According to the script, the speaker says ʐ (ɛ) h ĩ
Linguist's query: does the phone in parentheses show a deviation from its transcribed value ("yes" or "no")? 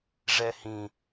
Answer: no